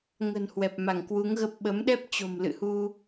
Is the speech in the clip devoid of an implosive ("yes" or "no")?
no